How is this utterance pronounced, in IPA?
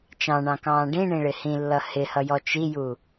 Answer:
t͡ʃ ɑ̃ ɳ ɑ̃ k ɑ̃ː ɖ ĩ ɳ ĩ ɭ ɪ h ĩ lː ʌ h ɪ h ʌ j ɔ t͡ʃ i j u

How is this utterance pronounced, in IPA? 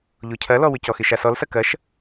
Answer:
ʎ o cʰ ɐ l ɔ w ʏ c ɔ x ɪ ʃ a s ɔ l s ɐ k ɐ ʃ

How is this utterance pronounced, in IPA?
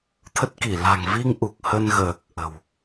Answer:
t̪ʰ ə˦˥ t̚ k i˧˩ l a̤˨˩ ŋ v i˧ ŋ ʔ u˨˩ k̚ h ə˧ n ɣ əː˨˩ k̚ ʔ ə̤˨˩ w

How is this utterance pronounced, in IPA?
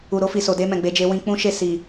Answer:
u˨ ɾ o˧ f i˨ s o˨ d e˧ m ɛ̃˨ ɡ͡b e˨˦ d͡ʒ e˧ w ĩ˧ k͡p ũ˦ ʃ e˦˨ s i˨

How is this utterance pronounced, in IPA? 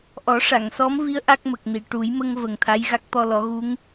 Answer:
ʔ ɔ˨˩˦ ʂ a˨˩˨ ŋ s ɔ˧˥ m v i˧˥ ə̯ ʔ a˦˥ k̚ m ə˨˩ k̚ n i˨˩˨ ʈ u˨˩˦ j m ə˧ ŋ v ə˨˩ ŋ t̪ʰ a˧˥ j ɣ a˦˥ k̚ t̪ ɔ˧ l ɔ˨˩˦ ɣ u˧˥ ŋ

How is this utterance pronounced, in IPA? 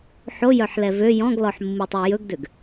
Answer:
ħ o j œ ħ l ɛ v ø j ɔ̃ ɡ l ɔ ħ mː u tˤ ʉ j ɵ ɡ d ø ɡ

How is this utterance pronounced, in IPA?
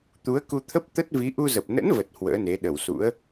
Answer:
t̪ u˨˦ ə̯ k u˧ t̪ʰ ə˦˥ p̚ t̪ ə˦˥ t̚ v i˨˦ ʔ u˧ z ə˨˩ p̚ n ə̰˧˥ n v ə˨˩ t̚ h w ə̰ː˧˥ n e˨˦ ɗ ə˧˩ w s ṵ˧˥ ə̯

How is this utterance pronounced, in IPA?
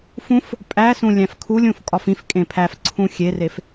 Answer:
f ũ f | pʼ æ s ũ lʲ æ̃ f kʰ u lʲ ũ f kʼ ɒ f ĩ f kʼ ẽ pʰ æ f ǀʰ ũ xʲ e r e f

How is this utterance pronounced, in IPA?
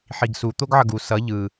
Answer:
ħ i ɡ s u t̪ o ɡ ʕ ʌ ɡ u s ʌ ʎ ɯ

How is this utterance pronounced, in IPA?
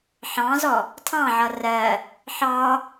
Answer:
ħ ɑ̃ z ɔ | tʰ ɑ̃ ʕ ʌ r ɜ | ħ ɑ

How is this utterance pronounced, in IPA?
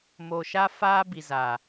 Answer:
m o˨ ʃ a˦ f aː˦ b i˨ z a˨

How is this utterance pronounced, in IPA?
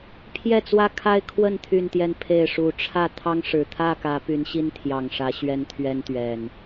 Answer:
pʰ j ɛ˥˨ t͡s w ä˦ kʰ a˦ ɪ̯ kʰ w ə˥˨ n t̪ʰ y˥˨ n t̪ j ɛ˥˨ n pʰ e˥˨ ɪ̯ ʂ u˨˩ ʈ͡ʂʰ ä˥˨ t̪ʰ ɑ˦ ŋ ʂ ɻ̩˨˩ t̪ʰ ä˥˨ k ä˨˦ p y˨˦ n ɕ i˦ n t̪ʰ j ɑ˨˩ ŋ ʂ ä˨˦ ɕ ɥ ɛ˦ n t̪ʰ ɥ ɛ˦ n t̪ ɥ ɛ˨˩ n

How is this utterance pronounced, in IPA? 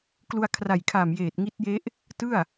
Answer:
k l u˧ a̯ kʰ r a˨˩ j kʰ a˨˩ m j eː˨˩ t̚ ŋ i˦˥ t̚ j e˦˥ ʔ | t ɯ˥˩ a̯

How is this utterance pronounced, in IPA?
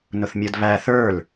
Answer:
n ʊ θ mʲ ɤ d β æ θ ə˞ l

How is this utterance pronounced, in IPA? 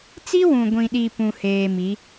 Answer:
t͡s i˦ w ũ˨ ɡʷ ĩ˨ ɗ i˨ p ũ˨ h eː˨ m i˨˦

